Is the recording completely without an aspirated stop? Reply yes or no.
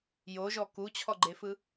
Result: no